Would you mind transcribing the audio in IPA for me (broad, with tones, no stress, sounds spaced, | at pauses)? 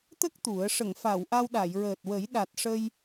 t̪ ə˦˥ k̚ t̪ u˨˩˦ ə̯ ʂ ə˨˩˨ ŋ f a˨˩˨ w ʔ a˧ w ɗ a˨˩˨ j ɹ əː˨˩ t̚ w ə˨˩˦ j ɗ a˨˩ t̚ ʂ ə˧ j